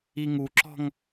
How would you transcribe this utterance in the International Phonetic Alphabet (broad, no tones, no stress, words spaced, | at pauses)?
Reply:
iŋuǁɔ̤ŋ